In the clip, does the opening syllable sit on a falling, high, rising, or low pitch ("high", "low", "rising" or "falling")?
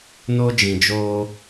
high